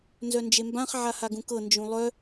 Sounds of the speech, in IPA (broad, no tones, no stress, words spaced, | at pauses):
nzœnd͡ʒembãχ ʕahaɡũkɤ nd͡ʒũlˠœ